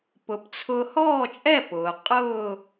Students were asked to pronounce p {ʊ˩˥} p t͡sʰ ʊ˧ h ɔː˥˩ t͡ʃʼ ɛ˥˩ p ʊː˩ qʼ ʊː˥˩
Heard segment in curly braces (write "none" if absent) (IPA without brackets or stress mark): ʊ˩˥